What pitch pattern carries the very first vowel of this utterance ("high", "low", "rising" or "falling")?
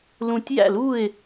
low